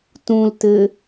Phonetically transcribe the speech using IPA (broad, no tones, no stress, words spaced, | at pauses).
tũltɘ